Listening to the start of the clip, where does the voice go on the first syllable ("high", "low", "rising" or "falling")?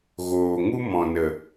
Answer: low